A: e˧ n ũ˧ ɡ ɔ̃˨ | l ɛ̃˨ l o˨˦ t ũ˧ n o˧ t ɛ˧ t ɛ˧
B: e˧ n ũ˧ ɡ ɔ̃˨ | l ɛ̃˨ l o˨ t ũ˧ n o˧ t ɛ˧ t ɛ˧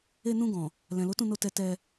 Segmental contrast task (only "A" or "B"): A